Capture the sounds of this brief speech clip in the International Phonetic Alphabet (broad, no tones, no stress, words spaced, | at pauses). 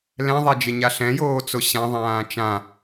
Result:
lɛ̃ðˤad͡ʒɪɲa ɬɛ̃joːt͡so ɕãðˤãː t͡ʃã